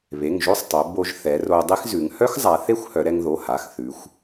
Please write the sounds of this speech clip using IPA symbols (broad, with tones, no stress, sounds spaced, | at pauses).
β e˩˧˩ ŋ ʒ o˥ sˤ tˤ o˩˧ b o˧ ʒ θ ɛ˩˧ r o˧ dˤ e˥ x z ʉ˩˧ ŋ h œ˥ x zˤ a˩˧ θ e˥ xʷ h œ˩˧ ɾ ɛ˧ ŋ ð o˩˧˩ h a˩˧˩ x θ ʉ˩˧ xʷ